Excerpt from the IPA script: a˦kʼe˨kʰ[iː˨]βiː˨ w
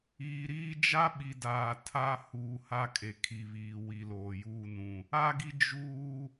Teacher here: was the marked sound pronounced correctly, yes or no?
no